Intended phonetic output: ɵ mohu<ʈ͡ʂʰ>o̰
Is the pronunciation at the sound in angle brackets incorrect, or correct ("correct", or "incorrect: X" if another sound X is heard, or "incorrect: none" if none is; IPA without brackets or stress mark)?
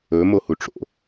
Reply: incorrect: ʈ͡ʂ